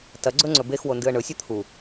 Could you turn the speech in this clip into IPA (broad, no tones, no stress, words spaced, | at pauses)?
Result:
tɐɡ͡ǀɵ ŋ͡ǀɵbexwo ndɨə̯ɳɵsʲɐ t̪ʰu